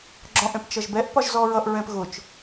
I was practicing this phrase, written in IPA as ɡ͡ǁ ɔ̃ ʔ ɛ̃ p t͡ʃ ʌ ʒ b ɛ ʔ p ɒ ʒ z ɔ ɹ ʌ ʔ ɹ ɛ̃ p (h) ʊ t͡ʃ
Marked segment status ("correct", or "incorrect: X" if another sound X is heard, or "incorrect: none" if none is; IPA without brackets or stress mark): incorrect: ɣ